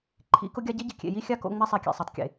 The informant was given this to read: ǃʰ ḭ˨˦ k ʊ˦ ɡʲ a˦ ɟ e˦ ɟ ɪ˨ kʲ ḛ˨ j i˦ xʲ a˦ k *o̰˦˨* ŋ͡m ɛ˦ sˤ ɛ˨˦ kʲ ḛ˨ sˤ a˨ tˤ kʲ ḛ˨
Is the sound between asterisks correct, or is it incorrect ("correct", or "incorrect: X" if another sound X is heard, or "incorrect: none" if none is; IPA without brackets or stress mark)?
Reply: correct